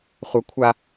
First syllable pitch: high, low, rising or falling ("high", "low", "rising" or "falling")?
high